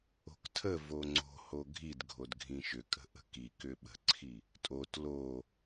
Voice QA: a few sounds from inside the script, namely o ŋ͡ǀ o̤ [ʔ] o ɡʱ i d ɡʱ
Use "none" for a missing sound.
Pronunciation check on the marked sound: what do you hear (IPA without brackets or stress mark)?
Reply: h